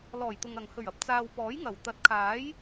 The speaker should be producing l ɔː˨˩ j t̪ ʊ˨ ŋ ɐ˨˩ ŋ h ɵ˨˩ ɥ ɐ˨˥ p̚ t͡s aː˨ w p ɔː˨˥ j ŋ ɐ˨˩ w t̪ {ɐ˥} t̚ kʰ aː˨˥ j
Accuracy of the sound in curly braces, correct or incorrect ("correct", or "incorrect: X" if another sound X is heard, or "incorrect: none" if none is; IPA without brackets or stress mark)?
incorrect: ɐ˨˥